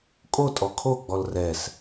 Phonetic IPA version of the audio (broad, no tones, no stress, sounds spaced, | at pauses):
kʼ o tʼ ɔ kʰ o ɡ͡b ɔ l r ɛ s